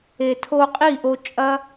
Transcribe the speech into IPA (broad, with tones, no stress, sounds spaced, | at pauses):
e˧ tʰ o˧ qʼ i˦˨ ʔ o˧ t͡ʃʼ ɐ˦